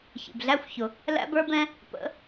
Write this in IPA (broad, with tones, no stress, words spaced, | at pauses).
çḭ˨bɮæ˦xʷçʊ˨ | læ̰˦bə˞˦bɛ̃˦ | pə̰˨˦